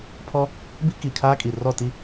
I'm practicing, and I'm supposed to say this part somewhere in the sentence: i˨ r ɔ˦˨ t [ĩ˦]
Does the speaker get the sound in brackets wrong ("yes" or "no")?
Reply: yes